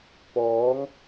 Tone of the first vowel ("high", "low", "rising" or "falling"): rising